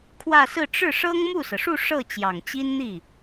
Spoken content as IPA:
kʰ w ä˥˧ s ɹ̩˥˧ ʈ͡ʂ ɻ̩˥˩ ʂ ɤ˥ ŋ m u˥˩ s ɤ˩ ʂ u˥˧ ʂ ɤ˥˩ t͡ɕ j ɑ˨˩ ŋ t͡ɕ i˥ n n̪ i˥˩

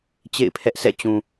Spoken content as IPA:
t͡ɕ ḛ˦˨ ɪ̯ pʰ ɛ˦ ʔ s ɛ̰˦˨ t͡ɕ ũ˨

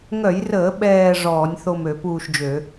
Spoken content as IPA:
ŋ œ˧˩˧ j r əː˧˩˧ ɓ ɛː˦˨ ʐ ɔː˧˩˧ nʲ θ o˦˨ m ø˧˩˧ p uː˦˨ ʃ d͡ʒ ø˧˩˧

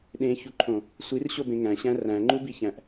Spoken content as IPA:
ɗ ẽ ç u ǃʰ õ | sʷ i r ɕ o b ẽ ŋ æ̃ ɕ æ̃ r æ̃ ŋ͡ǃ u b i ç æ̃ ʔ

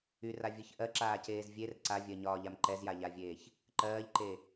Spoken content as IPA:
y r a vʲ ɜ ç ʔ ɜ ǁ aː c eː z vʲ e r ǀ a vʲ ɜ ɲ ɒː ʎ a m ǃ ɛ z j a ʎ a vʲ eː ç | ǃ ɜː ʎ ǃ e

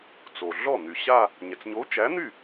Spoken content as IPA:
t͡s o˩ ɮ ɔ˥˩ n̪ y˩ ɕ a˥˧ | ɲ ɛ˩ t͡s ɲ o˨˥ t͡ʃ æ˨˥ n̪ y˥˩

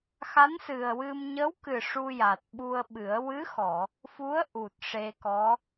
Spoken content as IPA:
x a˧˥ n s ɨ˨˩ ə̯ w ɨ˧ m ɲ ə˧˥ w k ɨ˨˩ ʂ u˧ j a˨˩ t̚ ɓ u˧ ə̯ ɓ ɨ˨˩˦ ə̯ w ɨ˧˥ x ɔ˨˩˨ | f u˧˥ ə̯ ʔ u˨˩ t̚ ʂ e˧ k ɔ˧˥

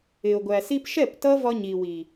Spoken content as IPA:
ɪ˨ o̯ ɡʷ æ˨ s i˧ p ʃ ɛ˦˨ p t ʌ˦ v ɒ˧ ɲ i˨ w i˨

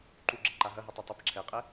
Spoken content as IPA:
ǃ u ɡ͡ǁ ɘ ǃ a ɦ ɐ ɦ i tˤ ɛ tˤ ɐ p ǁʰ ɛ qʼ ɛ

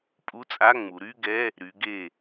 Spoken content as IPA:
pʼ u˧˥˧ t͡sʼ a˧˥˧ ŋ͡m u˩˧ ɾ y˧˥˧ ɡ ɛ˧˥˧ | ɾ y˩˧ ɡ e˧˩

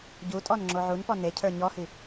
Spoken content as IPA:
ɟ u tʼ ɔ n ŋ͡ǁ o ʕ u n p ɔ n e cʰ ə˞ ɲ ɔ h i

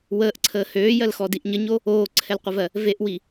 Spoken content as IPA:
w əː ʔ ǀʰ əː h øː j ɜ l x ɔ d i ʔ ɲ ə ɲ o | oː ǀʰ ɛ l qʷ ə v ɜ | v e ʔ w i

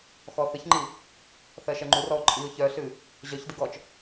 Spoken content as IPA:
x ɔ θ ɨ ç ŋ͡ǃ i | θ ɜ ʃ ɜ ŋ͡ǃ u r ɔ ʊ̯ ǃʼ i ʊ̯ ç œ ɬ ɨ | ʑ œ ç d ɨ ɡ ɔ t͡ʃ

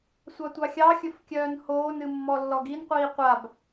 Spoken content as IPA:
sʷ ɑ tʷ ɑ xʲ ɑ xʲ ɵ f kʲ œː n h oː n ɨ mː ɔ lː ɔ ɡ i n qʷ iː qʷ a b

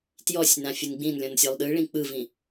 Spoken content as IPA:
t j ɔ sʲ n ã fʲ ɯ n ɡ͡b ĩ n lʲ ɔ̃ n sʲ ɔ lˠ ɗ ɯ ɭ ĩ k͡p ɯ v ĩ

